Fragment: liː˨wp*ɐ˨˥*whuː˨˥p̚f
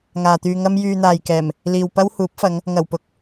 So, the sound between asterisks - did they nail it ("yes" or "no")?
no